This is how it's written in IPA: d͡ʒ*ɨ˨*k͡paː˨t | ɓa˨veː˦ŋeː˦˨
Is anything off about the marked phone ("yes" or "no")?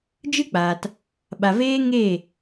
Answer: yes